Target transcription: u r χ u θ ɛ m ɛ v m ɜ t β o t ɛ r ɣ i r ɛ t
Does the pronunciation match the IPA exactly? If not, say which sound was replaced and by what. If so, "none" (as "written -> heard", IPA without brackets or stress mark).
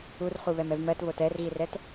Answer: θ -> β